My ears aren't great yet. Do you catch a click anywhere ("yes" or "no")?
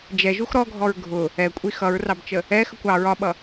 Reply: no